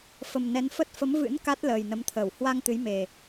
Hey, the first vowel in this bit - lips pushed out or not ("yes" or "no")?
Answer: no